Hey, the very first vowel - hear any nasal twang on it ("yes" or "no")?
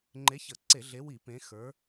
no